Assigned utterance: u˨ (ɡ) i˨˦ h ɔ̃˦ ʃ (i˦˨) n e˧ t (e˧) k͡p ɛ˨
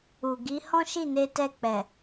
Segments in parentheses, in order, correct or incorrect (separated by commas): correct, correct, incorrect